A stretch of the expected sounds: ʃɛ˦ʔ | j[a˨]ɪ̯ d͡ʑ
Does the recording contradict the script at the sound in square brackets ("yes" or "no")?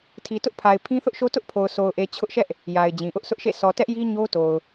no